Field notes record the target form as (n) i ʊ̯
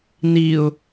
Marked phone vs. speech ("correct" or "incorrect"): correct